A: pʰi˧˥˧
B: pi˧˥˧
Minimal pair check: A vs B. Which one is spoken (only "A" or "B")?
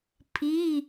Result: A